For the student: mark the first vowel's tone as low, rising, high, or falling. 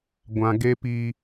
low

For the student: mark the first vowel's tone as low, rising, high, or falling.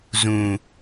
low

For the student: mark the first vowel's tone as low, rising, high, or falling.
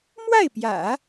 falling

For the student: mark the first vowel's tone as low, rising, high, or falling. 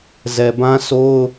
low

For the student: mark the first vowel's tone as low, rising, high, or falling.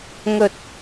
low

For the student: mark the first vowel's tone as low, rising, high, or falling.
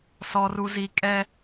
high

